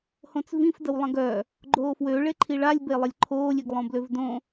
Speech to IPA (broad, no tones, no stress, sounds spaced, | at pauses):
h õ t͡s v ĩ f d ə w lˠ ə̃ ɡ œ | ɡ͡ǃ oː f w ø ɭ e ǃʰ i ɭ a lʲ b e lˠ ə lʲ ǃʰ oː lʲ i ɡ lˠ õ b l ø v d õ